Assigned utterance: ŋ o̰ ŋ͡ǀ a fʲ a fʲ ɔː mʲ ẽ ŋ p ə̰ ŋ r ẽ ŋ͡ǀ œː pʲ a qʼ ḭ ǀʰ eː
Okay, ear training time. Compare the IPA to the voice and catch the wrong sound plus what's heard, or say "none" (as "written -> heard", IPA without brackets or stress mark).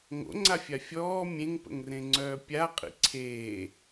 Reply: none